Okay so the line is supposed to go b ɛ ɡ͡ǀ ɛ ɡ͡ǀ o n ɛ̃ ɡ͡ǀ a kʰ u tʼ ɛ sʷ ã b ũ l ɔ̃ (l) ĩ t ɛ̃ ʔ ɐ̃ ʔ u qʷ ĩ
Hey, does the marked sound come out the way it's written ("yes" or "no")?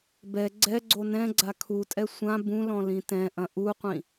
yes